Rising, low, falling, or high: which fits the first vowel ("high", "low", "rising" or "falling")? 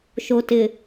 low